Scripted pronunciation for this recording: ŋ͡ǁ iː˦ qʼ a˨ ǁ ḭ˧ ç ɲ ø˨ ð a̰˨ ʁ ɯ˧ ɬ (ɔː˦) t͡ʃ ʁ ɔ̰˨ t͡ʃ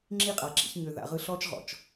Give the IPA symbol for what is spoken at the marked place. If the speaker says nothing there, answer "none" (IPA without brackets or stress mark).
ɔː˦